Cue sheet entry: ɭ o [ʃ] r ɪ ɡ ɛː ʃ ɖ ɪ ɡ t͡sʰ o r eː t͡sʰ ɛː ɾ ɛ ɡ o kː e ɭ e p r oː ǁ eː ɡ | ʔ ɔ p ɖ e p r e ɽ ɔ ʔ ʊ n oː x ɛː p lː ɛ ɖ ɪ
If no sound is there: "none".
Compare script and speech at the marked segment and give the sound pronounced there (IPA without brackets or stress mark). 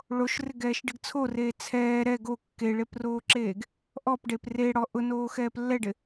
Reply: ʃ